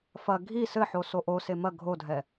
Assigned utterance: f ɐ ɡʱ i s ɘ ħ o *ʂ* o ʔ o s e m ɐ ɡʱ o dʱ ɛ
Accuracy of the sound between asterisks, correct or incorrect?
incorrect